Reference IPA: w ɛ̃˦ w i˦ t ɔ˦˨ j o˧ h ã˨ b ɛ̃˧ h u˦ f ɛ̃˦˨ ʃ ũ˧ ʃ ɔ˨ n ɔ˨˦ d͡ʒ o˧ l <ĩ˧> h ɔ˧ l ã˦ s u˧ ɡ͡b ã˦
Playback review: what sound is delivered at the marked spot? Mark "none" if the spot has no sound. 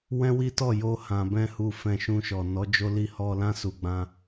i˧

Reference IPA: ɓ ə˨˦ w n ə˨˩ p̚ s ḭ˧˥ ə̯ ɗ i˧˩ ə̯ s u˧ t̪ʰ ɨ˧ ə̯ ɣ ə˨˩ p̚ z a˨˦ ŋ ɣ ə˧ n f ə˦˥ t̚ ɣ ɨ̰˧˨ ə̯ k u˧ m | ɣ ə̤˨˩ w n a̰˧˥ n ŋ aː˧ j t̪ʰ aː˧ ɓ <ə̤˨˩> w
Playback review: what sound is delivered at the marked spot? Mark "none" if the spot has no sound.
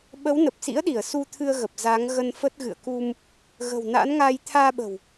ə̤˨˩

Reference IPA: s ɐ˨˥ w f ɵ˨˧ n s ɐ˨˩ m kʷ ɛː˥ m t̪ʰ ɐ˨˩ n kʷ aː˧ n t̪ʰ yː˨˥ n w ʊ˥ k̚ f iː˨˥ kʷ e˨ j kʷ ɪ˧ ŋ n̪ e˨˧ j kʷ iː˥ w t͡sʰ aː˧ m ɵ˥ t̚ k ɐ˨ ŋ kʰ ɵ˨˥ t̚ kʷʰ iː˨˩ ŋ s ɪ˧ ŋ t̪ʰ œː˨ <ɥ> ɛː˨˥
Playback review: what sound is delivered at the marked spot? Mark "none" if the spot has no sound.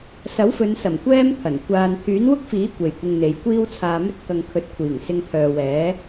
w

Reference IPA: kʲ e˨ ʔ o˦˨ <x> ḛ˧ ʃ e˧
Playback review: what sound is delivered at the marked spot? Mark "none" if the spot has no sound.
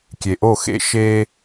x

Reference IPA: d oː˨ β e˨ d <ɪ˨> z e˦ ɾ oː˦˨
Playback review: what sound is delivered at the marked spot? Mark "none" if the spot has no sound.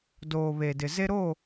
ɪ˨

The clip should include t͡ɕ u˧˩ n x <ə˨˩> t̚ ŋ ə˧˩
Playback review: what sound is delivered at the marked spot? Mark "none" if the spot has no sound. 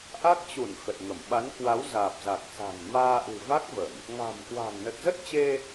ə˨˩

